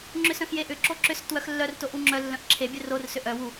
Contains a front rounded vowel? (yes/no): yes